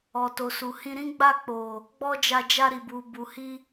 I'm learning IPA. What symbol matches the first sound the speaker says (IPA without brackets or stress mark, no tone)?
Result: ɔ